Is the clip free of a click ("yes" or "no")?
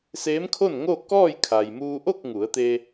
yes